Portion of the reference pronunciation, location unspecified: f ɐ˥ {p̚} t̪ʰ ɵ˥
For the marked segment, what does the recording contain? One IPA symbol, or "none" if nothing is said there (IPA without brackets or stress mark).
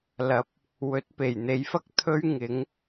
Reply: k̚